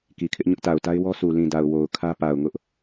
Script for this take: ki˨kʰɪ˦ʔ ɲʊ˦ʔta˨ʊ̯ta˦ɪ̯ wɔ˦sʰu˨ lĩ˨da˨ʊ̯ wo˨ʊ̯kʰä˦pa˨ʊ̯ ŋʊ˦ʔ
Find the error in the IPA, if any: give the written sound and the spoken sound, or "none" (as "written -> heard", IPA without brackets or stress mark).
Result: none